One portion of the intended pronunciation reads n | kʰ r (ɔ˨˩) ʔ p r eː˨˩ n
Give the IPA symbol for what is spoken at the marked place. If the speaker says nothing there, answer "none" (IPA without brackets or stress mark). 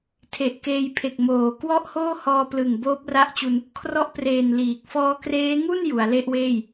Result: ɔ˦˥